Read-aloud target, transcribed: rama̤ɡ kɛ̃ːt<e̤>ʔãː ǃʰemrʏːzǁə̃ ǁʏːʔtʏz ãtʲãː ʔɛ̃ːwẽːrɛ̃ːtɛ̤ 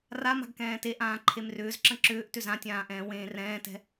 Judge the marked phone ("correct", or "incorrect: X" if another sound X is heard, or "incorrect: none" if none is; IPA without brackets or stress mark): incorrect: e